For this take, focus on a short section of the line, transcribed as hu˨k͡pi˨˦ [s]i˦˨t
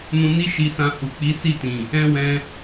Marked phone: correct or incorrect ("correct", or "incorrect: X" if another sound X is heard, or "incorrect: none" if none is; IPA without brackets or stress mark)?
correct